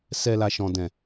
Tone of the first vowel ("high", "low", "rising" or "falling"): low